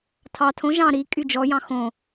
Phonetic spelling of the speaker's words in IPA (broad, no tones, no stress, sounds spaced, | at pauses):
tʰ ɑ tʰ õ ʒ ɑ̃ ɾ i kʼ y d͡ʒ ɔ j ɑ̃ x õ